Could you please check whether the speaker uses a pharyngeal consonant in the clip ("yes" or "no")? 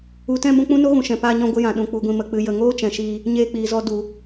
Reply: no